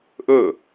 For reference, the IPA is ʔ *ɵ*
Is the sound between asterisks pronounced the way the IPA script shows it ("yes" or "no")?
yes